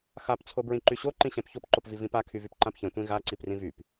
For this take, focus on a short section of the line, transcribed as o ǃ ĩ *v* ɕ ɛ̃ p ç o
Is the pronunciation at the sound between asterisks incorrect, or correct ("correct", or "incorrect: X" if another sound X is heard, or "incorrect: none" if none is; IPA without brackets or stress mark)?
incorrect: none